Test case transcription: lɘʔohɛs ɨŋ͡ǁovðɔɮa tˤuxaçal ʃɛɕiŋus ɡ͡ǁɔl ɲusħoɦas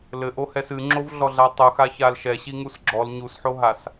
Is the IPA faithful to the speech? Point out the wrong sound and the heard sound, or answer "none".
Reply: ð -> ɮ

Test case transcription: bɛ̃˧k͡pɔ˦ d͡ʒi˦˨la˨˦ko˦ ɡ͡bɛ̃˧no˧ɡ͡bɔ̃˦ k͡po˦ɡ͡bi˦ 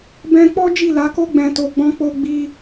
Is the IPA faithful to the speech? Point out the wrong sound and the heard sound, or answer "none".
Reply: n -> t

